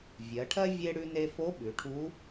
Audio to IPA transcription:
vʲ ɜ˩˧ ʈʰ ɜ˥ vʲ e˥ ɽ ʉ˧ n e˧ f o˧˥ ɓ ʉ˩˧ ʈʰ u˧˥

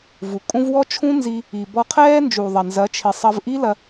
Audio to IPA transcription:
v u˨ kʼ ũ˦ v w ɔ˦ t͡ʃʰ ũ˦ n z i˧ | i˨ b ɔ˧ qʰ ɛː˦ n d͡ʒ u˨ ðˤ ɐ˨ n z ɐ˨˦ t͡ʃʰ i˨ sˤ ɐ˧ v ʔ i˦ l ɐ˧

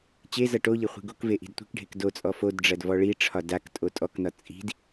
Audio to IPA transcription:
t͡ɕ e z ʌ ʈ o ʎ e χʷ i̤ ɡ o k v e ʔ i̤ d tʷ i̤ k ɖʱ e k d o t͡sʼ ɔ f o d ɖ͡ʐ ɐ d v ɔ ɭ i ʈ͡ʂʰ ɒ d a k tʼ o tʼ ɔ k n ɒ t͡sʼ i̤ d

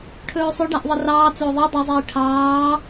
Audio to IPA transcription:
ʈʰ ɵː sˤ ɵ ɖ a ʔ ðˤ ɘ r ɑː t͡s ɵː ðˤ i dˤ ɵ zˤ iː ʈʰ ɑː

